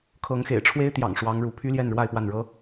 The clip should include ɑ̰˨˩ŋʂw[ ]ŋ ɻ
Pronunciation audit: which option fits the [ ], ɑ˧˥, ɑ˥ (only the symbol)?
ɑ˧˥